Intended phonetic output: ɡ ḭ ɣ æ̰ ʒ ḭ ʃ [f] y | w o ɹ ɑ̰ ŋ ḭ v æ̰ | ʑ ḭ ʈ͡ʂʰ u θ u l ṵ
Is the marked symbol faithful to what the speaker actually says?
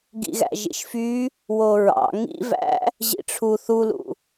yes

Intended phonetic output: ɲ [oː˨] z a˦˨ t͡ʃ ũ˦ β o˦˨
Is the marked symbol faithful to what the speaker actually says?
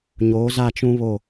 no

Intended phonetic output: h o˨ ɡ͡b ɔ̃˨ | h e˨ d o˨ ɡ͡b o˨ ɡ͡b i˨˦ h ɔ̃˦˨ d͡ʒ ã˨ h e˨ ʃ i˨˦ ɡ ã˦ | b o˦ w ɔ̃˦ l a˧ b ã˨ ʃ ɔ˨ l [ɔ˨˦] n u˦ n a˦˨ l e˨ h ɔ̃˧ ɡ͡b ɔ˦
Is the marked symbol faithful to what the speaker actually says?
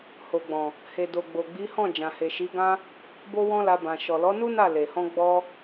yes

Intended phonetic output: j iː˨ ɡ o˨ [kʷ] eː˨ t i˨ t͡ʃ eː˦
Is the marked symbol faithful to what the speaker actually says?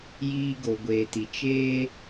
no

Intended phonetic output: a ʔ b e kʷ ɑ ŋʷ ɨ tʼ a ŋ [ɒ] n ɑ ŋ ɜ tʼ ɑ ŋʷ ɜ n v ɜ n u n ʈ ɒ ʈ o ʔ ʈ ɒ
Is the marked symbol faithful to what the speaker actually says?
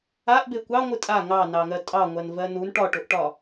no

